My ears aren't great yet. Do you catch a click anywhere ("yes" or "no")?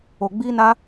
no